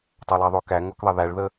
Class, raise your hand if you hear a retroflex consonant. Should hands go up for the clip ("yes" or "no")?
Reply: yes